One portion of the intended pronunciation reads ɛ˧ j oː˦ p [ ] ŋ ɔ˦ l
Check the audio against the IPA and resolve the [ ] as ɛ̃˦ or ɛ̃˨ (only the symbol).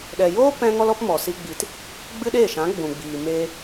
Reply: ɛ̃˦